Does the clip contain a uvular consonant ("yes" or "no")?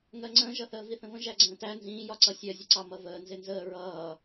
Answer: no